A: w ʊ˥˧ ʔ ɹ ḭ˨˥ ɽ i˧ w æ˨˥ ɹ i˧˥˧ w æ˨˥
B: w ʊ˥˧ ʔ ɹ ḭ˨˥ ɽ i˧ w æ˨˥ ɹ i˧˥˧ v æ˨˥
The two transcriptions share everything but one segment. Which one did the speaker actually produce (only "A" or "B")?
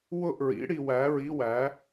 A